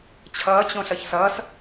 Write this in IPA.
t͡ɕʰ ʌː t͡ɕ õ ɬ ʌ ç s ʌː s

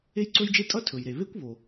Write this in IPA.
e˥ j ǀ ɵ˥ j d͡ʒ e˥ tʼ ʌ˥ tʰ ɵ˩ j ɾ e˩ β e˥ kʷ β o˩

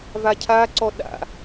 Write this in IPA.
v a cʰ a ǀ ɔ ɗ a̰

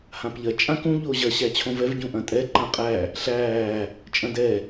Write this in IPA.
h ã p ʎ ɐ t͡ʃʼ ã k ũ ʎ o ʑ ɐ ɕ æ t͡ɕʰ õ v ɛ v ɟ ũ ʔ ɐ̃ tʼ ɛ ǃ ã qʼ æ | ɬ æː | t͡ʃʼ ɐ̃ d ɛ

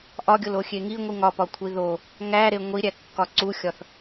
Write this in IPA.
ʔ ɒ ɡʲ o l o xʲ e ŋ i ŋʷ i ŋ ɒ p ɒ kʷʰ i ð o | ŋ æ ɾ e ŋʷ i ɾʲ æ kː ɒ ǀ u xʲ ɒ θ

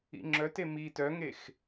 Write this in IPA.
ḭ ŋ͡ǁ œ t e m i t œ ŋ e x

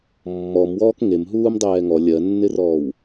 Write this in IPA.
mː ɔ m w ɔː k ŋ e m ɦ uː m dˤ ɛː ŋ ɔ lʲ ɜ nː ɪ r ɔː w

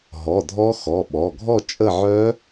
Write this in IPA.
ɦ ɔ˩˧˩ dʱ ɔ˦˥ x ɔ˩˧˩ ɓ ɔ˩˧˩ ɡʱ ɔ˦˨ t͡ʃʼ ə˦˨ ʕ œ˦˥

